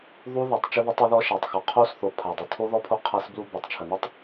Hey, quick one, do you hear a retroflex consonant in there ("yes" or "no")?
no